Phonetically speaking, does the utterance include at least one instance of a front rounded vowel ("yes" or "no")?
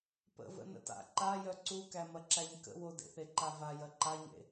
yes